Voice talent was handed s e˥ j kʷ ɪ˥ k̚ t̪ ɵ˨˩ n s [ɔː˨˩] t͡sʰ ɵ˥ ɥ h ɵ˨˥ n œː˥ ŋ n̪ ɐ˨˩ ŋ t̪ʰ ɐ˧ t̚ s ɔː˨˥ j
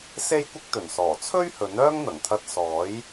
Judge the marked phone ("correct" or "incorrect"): correct